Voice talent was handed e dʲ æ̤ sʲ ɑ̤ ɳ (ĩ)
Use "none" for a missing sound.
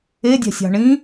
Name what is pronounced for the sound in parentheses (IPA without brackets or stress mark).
ĩ